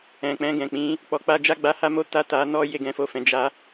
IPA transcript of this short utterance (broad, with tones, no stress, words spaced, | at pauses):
ɛ̃˨k͡pɛ̃˧ɡɛ̃˨k͡pĩ˨˦ | k͡pɔ˧k͡pa˦ d͡ʒa˦ɡ͡ba˦ha˦mo˦ ta˦˨ta˧ nɔ˦ je˧ɡɛ̃˧fo˧fɛ̃˨ d͡ʒa˧